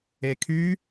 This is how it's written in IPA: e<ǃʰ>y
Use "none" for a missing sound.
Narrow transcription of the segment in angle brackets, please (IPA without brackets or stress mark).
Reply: kʰ